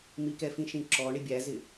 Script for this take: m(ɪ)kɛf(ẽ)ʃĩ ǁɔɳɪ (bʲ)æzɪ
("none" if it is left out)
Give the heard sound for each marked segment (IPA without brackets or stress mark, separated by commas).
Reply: i, ĩ, bʲ